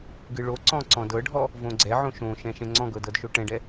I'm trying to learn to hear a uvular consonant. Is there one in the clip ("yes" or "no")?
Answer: no